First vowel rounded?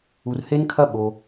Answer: yes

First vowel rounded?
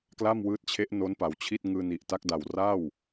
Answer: no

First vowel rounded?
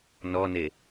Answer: yes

